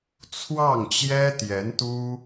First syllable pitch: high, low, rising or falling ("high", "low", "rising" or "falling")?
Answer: falling